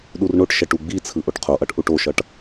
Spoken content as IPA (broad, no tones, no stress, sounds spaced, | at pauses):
ɗ u r ɳ o ʈ ʃ ɛ ʈ u ɡ͡b i t͡sʰ ɯ ʔ o ʈ qʰ o ʔ ʌ ʈ ʔ u ʈ o ʃ ʌ ʈ